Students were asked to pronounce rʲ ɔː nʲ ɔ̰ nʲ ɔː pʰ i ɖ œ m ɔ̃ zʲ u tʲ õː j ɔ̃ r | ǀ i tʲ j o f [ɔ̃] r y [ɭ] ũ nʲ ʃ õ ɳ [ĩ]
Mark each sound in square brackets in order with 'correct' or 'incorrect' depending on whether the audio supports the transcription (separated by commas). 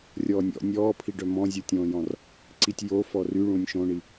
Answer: incorrect, correct, incorrect